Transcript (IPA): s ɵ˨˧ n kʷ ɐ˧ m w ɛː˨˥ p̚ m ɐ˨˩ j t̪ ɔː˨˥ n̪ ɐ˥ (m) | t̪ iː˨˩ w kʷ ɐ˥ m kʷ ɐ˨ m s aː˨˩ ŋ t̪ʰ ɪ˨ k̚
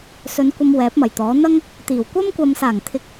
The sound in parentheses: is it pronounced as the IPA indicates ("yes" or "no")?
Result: no